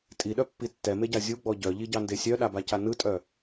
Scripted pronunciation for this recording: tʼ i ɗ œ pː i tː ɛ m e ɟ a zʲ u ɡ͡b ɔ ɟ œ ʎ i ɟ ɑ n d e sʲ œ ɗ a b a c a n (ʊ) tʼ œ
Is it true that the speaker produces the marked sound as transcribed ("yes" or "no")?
no